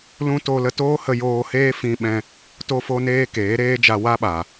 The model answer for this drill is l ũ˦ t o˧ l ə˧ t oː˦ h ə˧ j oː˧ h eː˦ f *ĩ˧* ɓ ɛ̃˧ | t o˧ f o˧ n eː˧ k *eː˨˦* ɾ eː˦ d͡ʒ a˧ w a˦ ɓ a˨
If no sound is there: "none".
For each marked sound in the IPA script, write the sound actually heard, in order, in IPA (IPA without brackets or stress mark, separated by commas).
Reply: ĩ˧, eː˨˦